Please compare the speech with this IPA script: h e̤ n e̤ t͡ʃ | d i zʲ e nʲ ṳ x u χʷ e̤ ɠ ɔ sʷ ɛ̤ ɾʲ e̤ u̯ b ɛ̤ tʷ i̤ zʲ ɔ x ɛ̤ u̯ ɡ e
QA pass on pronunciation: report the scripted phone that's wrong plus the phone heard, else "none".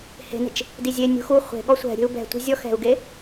none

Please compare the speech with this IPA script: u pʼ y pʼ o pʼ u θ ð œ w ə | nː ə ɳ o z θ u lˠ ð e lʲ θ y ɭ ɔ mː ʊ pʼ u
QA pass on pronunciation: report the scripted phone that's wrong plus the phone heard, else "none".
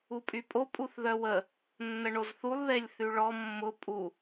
none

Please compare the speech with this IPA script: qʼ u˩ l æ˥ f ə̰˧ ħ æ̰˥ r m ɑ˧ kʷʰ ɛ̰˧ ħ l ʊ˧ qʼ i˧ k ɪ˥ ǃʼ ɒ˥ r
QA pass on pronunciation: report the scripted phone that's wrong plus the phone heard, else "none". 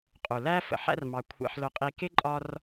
none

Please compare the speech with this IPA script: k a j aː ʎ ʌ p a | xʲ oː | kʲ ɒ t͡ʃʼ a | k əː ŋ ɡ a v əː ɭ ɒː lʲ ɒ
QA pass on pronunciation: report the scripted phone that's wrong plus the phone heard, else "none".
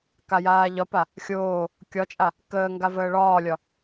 ʌ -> ɒ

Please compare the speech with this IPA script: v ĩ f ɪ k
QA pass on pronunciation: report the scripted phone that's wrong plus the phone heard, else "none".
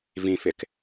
none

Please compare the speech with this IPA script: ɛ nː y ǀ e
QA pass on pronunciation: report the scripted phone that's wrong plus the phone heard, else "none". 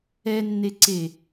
y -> e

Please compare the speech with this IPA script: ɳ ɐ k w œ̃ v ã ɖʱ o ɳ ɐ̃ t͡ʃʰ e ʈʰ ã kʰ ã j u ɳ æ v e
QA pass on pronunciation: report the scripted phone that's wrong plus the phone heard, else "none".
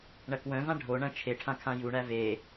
none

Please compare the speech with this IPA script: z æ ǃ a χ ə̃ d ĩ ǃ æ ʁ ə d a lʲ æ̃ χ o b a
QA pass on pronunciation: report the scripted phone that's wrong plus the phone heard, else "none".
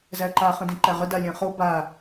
none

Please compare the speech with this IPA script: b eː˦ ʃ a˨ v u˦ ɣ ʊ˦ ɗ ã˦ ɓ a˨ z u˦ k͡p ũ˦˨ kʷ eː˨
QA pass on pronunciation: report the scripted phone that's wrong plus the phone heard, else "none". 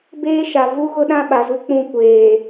none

